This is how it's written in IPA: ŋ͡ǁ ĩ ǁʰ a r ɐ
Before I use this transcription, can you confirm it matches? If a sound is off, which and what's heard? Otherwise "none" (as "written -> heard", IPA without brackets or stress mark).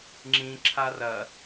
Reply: none